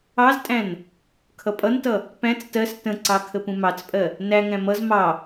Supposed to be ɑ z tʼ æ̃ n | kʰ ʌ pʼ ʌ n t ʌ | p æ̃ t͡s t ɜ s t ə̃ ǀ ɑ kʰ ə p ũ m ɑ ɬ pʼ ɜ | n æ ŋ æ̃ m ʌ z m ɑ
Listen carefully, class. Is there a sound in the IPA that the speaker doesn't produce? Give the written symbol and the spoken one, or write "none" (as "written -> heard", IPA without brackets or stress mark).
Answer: ɬ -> t͡s